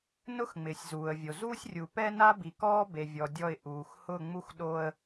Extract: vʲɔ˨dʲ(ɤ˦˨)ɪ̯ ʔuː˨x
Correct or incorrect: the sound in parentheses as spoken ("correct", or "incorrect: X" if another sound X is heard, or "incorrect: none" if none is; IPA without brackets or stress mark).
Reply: incorrect: ɔ˦˨